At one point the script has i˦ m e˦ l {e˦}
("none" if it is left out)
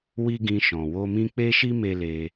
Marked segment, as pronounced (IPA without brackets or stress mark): e˧